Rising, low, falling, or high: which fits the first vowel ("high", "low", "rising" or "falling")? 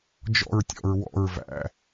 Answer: falling